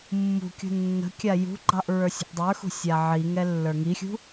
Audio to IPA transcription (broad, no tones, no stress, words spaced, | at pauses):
mːṳkʲṳ nːə̤kʲa jṳɡ͡ǃɑʔ ɹə˞sʲə̤ʔdˤə˞xṳ sʲaʕiŋɛ lːə˞ŋixʲṳ